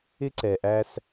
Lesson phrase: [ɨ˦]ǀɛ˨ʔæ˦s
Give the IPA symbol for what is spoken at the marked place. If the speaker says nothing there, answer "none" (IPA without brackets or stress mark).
ɪ˦